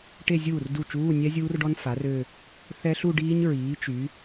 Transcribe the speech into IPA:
ʈ e˥˧ zʲ uː˥˩ r d u˥˩ t͡ʃ uː˧˥˧ nʲ ɛ˦˥ zʲ uː˦˥ r ɖ ɔ˦˥ n f a˩˥ r ø˥˧ | θ ɛ˦˥ ɬ u˥˧ ɖ iː˦˥ ɲ ɹ iː˩˥ t͡ʃ y˩˥

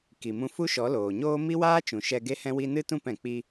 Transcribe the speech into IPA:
k i˨ m ũ˧ f u˦ ʃ ɔ˨˦ l oː˨ ɲ oː˦ m i˦ w aː˦ t͡ʃ ũ˨ ʃ ɛ˧ ɡ e˦ h ɛ̃˦ w i˦ n ɨ˦ t ũ˦˨ p ɛ̃˨ k͡p i˧

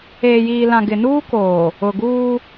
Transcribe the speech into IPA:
eː˨ j iː˨ l ã˨ ɡ ɪ˨ n uː˦ k oː˨ | ʊ˨ ɡ uː˦

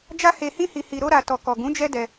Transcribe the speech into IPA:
d͡ʒ a˦ h e˧ h ĩ˦ h i˧ h i˧ ɾ o˧ ɾ a˨ t ɔ˨ k ɔ˨ ɡ ũ˨˦ d͡ʒ ɛ˦ d ɛ˧

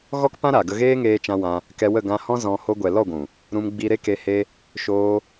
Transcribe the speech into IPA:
ɣ ɔ˦ k p ã˦ ɾ a˨ ɡ ə˧ ɣ eː˦ ŋ eː˧ t͡ʃ ã˧ w ã˧ | k ɛ˧ w ə˦˨ ɡ ã˧ h ɔ̃˦ z ɔ̃˧ h o˧ ɡʷ ɛ˨ l ɔ˦˨ ɡʷ ũ˨ | ɾ ũ˧ m ɡ͡b i˧ ɾ e˦ k e˧ h e˦ | ʃ oː˧

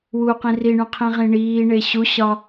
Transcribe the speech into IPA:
w u q ĩ r i ɳ ũ qʰ ĩ ʁ ĩ ɳ iː ɳ e ɕ u ɕ ɒ

